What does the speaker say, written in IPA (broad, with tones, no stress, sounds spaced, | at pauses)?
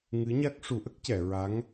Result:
ŋ ɨ˧˥ ɲ a˦˥ k̚ ʂ u˨˩˦ ʔ ə˦˥ k̚ c ɛ˨˩˨ ɹ a˧˥ ŋ